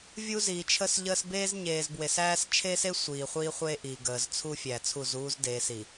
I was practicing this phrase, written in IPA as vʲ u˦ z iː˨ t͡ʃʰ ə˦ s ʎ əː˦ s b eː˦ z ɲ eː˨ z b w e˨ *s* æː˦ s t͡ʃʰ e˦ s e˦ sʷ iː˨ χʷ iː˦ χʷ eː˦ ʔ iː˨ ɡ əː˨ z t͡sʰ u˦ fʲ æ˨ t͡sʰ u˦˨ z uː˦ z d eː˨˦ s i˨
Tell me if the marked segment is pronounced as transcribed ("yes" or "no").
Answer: yes